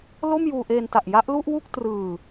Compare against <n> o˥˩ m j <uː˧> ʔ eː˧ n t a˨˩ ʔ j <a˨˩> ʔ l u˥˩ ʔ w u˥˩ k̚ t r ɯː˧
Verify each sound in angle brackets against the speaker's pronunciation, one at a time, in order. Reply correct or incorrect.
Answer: incorrect, correct, incorrect

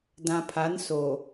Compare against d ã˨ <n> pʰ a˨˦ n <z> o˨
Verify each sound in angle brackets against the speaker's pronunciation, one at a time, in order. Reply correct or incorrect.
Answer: incorrect, incorrect

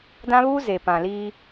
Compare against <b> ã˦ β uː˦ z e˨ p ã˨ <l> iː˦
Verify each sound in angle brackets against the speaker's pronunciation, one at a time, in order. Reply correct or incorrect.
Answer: incorrect, correct

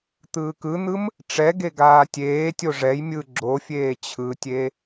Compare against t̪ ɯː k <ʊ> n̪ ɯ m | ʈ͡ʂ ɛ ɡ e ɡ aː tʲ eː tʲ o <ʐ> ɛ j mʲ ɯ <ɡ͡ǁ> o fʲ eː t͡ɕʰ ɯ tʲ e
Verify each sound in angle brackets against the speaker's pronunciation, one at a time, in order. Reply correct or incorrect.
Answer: incorrect, correct, correct

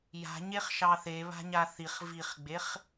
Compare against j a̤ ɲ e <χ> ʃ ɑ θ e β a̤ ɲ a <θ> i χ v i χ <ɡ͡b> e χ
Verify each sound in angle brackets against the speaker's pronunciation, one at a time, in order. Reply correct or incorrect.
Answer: correct, correct, correct

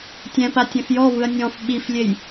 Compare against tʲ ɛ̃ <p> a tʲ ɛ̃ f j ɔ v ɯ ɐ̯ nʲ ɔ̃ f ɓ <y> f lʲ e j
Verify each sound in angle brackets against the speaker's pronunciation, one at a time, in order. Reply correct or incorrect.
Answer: correct, incorrect

